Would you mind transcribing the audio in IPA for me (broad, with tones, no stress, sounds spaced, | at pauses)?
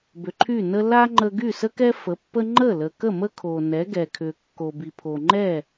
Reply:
b ʏ˩ ǃʰ y˥˩ n ə˥ l a˥ ŋ͡ǃ ə˧ ɡ y˥˩ s ə˥ k ɛ˥ f ə˩˥ pː ə˥ ŋ͡ǃ ə˥˩ l ə˩ k ə˥˩ m ə˥ kʰ o˩ n ɛ˩˥ ɡ ɛ˩ kʰ ʏ˩ kː o˩ b i˩ pʰ o˩ ŋ͡ǃ ɛ˥˩